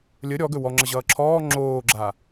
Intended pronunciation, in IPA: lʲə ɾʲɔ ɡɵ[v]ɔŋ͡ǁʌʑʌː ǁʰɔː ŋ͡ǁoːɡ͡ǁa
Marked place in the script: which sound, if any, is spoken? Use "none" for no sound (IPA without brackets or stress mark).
w